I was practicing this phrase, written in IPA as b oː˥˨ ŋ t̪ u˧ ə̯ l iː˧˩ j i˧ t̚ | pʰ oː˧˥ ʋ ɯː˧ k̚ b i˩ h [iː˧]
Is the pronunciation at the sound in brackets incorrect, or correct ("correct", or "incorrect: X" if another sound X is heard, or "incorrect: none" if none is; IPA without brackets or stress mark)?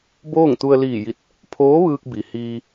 correct